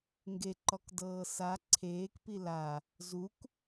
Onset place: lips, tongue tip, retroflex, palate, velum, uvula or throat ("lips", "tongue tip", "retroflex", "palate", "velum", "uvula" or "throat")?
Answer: velum